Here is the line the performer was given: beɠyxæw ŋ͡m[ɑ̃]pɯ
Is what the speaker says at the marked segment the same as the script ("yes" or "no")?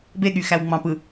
yes